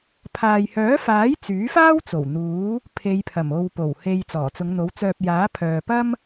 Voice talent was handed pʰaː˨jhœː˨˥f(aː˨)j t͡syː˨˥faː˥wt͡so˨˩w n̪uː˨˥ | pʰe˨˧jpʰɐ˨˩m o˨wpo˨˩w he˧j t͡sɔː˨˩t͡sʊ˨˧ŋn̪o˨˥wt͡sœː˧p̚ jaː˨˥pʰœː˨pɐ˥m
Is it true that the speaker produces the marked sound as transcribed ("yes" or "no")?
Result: no